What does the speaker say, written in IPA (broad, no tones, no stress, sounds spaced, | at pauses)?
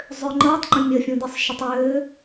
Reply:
zˤ ʏː ŋ͡ǃ əː tˤ ŋ͡ǃ ə̃ mʲ ə fʲ ũ d i sˤ ʃ ə tˤ ʏː